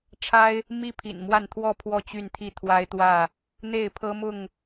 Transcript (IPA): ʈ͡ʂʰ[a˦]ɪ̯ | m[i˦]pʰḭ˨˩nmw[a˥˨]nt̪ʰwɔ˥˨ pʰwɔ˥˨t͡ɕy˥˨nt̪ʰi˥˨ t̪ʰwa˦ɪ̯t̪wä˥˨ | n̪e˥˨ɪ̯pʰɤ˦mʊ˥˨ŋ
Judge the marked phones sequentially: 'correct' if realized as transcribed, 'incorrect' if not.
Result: correct, correct, correct

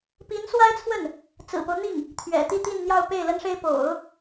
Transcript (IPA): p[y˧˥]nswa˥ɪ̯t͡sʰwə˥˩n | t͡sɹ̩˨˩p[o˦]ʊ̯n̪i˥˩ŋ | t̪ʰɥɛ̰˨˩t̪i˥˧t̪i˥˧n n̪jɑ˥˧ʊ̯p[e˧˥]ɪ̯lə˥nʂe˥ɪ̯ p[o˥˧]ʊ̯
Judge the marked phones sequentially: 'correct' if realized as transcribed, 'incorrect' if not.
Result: incorrect: i˧˥, correct, incorrect: e˥˩, incorrect: o̰˨˩˦

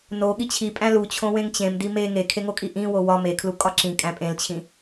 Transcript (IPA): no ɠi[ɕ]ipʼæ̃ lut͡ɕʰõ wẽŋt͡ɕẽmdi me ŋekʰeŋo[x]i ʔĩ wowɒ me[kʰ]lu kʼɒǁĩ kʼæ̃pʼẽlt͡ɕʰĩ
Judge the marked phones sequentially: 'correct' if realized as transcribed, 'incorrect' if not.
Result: incorrect: t͡ɕʰ, incorrect: kʼ, correct

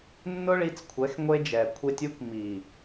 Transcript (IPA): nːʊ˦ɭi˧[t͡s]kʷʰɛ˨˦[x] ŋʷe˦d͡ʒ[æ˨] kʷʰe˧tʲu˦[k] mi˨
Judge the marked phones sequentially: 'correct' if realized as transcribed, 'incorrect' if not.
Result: correct, correct, incorrect: ɛ˨, correct

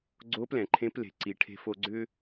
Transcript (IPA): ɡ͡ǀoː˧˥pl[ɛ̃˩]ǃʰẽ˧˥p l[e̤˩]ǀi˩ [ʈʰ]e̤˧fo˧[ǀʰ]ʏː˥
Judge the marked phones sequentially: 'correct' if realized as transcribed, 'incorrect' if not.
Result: correct, correct, correct, incorrect: ɡ͡ǀ

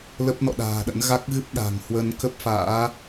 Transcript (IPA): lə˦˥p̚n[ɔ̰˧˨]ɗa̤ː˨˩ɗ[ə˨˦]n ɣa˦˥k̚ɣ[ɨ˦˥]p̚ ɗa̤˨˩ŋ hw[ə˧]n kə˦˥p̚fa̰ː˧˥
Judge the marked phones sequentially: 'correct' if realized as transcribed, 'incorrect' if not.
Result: correct, incorrect: ə̰˧˥, correct, correct

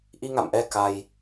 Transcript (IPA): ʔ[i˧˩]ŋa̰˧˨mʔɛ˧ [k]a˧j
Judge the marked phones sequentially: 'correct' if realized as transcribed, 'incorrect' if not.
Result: incorrect: i˧, correct

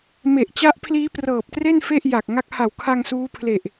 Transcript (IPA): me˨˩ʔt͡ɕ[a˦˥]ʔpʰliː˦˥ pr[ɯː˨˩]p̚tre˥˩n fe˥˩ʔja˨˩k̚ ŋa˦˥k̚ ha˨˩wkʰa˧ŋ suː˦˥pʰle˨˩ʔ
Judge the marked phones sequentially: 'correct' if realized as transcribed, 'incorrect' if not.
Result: correct, incorrect: ɤː˨˩

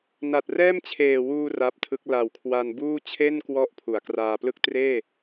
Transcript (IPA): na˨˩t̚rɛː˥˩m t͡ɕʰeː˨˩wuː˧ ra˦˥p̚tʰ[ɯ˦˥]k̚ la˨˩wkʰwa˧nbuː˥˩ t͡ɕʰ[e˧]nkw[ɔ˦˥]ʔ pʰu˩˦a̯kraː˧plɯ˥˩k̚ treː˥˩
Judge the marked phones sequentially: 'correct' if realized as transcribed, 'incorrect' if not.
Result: correct, incorrect: e˥˩, correct

